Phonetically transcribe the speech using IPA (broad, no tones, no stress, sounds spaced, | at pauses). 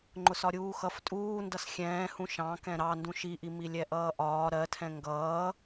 ŋ͡ǃ ʊ s ɒ ɾʲ uː x ʌ f tʼ uː n d ʌ s xʲ ɛ̃ː h ũ ʃ ɑ̃ k ɛ̃ ɾ ɑ n d ũ ʃ i ʔ i m i lʲ ɛ ʔ ʌː ʔ ɒː ɾ ɜ tʰ ɛ̃ ŋ ɡ ʌː